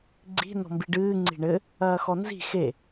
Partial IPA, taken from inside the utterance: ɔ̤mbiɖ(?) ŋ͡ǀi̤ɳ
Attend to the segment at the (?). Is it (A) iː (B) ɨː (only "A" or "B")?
B